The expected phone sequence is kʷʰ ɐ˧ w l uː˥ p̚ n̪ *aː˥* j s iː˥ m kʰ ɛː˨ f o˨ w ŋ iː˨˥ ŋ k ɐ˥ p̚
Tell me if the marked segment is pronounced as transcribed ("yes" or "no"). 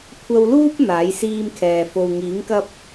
no